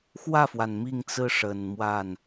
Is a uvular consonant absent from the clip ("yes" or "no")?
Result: yes